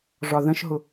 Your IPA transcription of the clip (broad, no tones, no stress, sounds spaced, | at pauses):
ʐ ɒ ð ə̃ ʃ ɦ ʊ